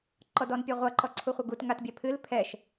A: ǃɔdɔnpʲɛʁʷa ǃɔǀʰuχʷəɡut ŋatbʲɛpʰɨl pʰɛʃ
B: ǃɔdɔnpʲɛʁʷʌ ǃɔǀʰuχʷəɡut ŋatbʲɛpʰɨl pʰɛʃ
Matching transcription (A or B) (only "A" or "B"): B